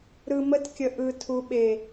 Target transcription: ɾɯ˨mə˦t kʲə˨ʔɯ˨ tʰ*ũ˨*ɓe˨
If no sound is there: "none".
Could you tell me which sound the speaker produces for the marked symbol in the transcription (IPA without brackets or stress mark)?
u˨